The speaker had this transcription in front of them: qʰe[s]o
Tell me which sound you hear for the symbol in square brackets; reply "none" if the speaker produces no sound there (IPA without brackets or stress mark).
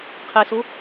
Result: s